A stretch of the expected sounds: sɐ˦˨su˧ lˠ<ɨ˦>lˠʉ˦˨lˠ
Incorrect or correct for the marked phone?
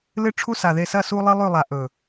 correct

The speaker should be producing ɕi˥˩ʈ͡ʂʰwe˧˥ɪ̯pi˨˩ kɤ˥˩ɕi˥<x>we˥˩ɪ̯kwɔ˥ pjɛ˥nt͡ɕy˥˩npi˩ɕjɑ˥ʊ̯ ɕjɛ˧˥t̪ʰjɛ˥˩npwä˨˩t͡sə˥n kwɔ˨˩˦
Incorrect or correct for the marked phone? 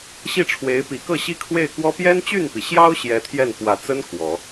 incorrect: kʰ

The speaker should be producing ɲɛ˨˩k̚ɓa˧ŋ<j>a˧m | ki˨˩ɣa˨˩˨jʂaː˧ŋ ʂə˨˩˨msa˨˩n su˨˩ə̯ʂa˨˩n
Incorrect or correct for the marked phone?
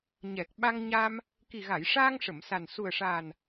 incorrect: ɲ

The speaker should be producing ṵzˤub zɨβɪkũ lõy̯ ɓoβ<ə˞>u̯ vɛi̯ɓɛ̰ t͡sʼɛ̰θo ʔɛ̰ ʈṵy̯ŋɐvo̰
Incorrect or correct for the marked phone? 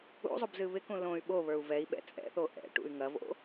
correct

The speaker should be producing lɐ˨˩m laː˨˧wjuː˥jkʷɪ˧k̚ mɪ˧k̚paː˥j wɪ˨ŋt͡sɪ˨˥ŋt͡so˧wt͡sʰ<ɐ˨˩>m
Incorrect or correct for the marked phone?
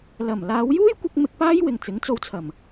correct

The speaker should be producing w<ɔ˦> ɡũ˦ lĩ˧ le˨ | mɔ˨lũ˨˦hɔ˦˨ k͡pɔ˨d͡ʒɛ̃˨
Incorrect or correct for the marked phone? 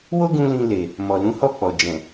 incorrect: o˦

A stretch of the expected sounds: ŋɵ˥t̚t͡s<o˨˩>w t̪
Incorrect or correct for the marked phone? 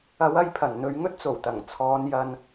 correct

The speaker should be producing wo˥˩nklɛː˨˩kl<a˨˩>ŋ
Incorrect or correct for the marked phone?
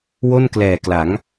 incorrect: a˩˦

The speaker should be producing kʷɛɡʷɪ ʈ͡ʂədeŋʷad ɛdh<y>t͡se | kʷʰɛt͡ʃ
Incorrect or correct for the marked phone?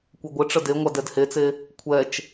incorrect: e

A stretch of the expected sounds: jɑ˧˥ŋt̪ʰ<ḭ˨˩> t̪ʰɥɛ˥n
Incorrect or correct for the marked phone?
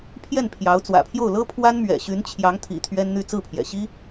correct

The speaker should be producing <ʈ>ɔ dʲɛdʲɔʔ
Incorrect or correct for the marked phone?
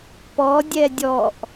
incorrect: p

